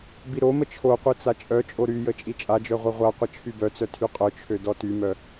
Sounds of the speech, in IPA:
b i ɾ o m ə t͡ʃʰ o qʷ i t͡s a t͡ʃʼ œ t͡ʃʼ o ɾ y j ə t͡ʃʼ i t͡ʃʼ a d͡ʒ œ ʁʷ œ ʁʷ a qʷ ə t͡ʃʰ y b œ t͡s œ tʰ y qʼ œ t͡ʃʰ ø d ɔ t y m œ

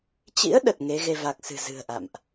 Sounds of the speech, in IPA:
t͡ɕ ḭ˧˥ ə̯ ɗ ə˨˩ t̚ ŋ e˨˦ ɣ e˧ v a˨˩ k̚ s ɨ̤˨˩ z ɨ̤˨˩ ə̯ ʔ a̰˧˨ m ʔ

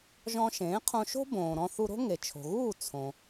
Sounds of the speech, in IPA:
ʒ ɔ̃˧ ʃ ẽː˩˥ qʰ õ˧ ʃ o̤˥ b õː˩ ɾ ɔ̃˧ θ u˧ ɾ o̤˥ ŋ e˩ t͡ʃʰ o̤˩ ɣ uː˥˩ t͡sʰ õ˩

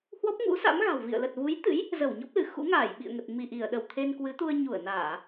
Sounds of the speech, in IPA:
h w ɔ˦˥ p̚ ŋ ṵ˧˥ s a̰˧˥ m ɣ a̤˨˩ w v ḭ˧˨ ə̯ l ə˨˩ t̚ v u˨˦ j t̪ ɨ̰˧˥ j | z ə˧˩ w ɲ ɔ˦˥ p̚ l ɨ˧˩ x ṵ˧˥ ŋ aː˧˩ j ɓ ḭ˧˨ ə̯ ŋ ə˨˩ t̚ m i˧˩ ʔ i˧˩ ə̯ ɗ ə˧˩ w t̪ʰ e˧ n k w ɨ˨˦ t̪ u˧ ə̯ ɲ u˧˩ ə̯ n aː˧˩˨

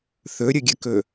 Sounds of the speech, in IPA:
θ ɵ ɾʲ ə ɡʲ ə k ɵ

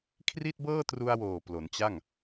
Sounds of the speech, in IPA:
kʰ r i˥˩ t̚ b ɤː˥˩ t r u˧ a̯ w oː˨˩ p l o˩˦ n t͡ɕ a˥˩ ŋ

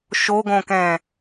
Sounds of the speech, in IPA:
ʃ o ɡ õ k ɛ̃

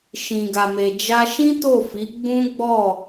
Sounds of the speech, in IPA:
ʃ ĩ˨ ɡ a˨ m e˨ d͡ʒ a˧ ʃ ĩ˦ t o˦˨ f i˨˦ ɡ͡b ũ˦ ɡ͡b ɔ˦˨

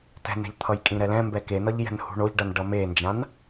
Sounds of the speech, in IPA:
t ɛ̤ n ɛ̤ ʎ t̪ʰ ʌ j kʼ ĩ ɾ ɛ l ɛ̃ m b ɛ k e n ʌ ʎ j ɛ̤ n h ṳ ɳ o ʎ ɖ ʌ n ɖ ʌ m e n d͡ʒ ã n

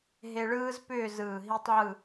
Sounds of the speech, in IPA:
ɦ e˧ ɭ ɯː˥ z p ʏː˥˧ z ɯː˧˩ ɦ i˥ tˤ ʕ ɯ˥˧

